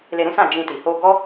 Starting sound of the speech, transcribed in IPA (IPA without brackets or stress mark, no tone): l